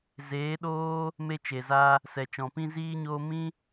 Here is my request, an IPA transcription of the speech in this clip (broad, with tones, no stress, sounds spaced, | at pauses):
z eː˨˦ ɗ oː˦ | m e˦ t͡ʃ e˨ z a˦ | s ɛ˨ t͡ʃ ɔ̃˨ p ĩ˦ z iː˦ ɲ oː˦ m ĩ˦